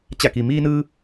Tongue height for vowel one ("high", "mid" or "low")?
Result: low